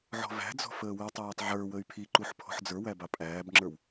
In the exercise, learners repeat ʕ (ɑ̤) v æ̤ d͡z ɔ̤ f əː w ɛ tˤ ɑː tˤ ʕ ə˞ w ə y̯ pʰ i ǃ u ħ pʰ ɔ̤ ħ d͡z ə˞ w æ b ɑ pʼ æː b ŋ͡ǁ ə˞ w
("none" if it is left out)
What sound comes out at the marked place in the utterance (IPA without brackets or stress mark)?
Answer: ɔ̤